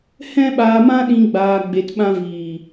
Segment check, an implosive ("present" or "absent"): present